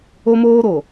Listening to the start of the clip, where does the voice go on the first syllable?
high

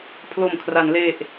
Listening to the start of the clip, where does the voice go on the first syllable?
low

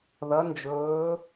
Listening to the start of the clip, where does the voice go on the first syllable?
rising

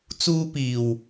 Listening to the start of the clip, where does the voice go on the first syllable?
high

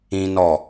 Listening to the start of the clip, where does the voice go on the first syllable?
high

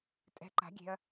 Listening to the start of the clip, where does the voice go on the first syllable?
rising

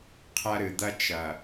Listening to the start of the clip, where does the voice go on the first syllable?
high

